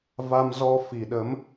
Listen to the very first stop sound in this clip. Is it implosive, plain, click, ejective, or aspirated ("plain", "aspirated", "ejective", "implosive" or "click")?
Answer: implosive